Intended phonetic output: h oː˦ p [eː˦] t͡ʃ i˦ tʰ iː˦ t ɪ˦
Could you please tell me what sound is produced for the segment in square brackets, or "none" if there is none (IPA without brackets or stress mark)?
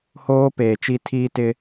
eː˨